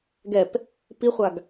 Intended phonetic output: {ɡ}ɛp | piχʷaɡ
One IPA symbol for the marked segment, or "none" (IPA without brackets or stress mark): ɡ